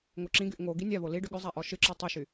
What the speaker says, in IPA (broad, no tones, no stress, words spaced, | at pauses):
ŋoǁĩɡyʔ ŋo ɡinʲaβo li ɖʏɠʏzˤa ʔɔʃɨǁɔ tˤʏʃy